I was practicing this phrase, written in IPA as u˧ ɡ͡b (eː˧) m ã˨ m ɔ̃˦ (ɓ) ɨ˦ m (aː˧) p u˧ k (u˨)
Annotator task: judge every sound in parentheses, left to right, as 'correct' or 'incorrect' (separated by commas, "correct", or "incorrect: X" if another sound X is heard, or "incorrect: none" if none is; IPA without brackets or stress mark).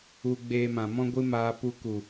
correct, incorrect: ɡʷ, correct, correct